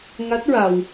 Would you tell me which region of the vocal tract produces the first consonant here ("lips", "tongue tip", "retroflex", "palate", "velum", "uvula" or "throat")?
velum